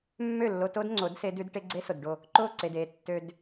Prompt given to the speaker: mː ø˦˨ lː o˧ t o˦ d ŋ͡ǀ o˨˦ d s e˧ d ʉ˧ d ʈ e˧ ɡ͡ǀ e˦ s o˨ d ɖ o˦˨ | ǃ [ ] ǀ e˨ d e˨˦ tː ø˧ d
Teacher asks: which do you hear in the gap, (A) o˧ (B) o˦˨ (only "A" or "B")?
B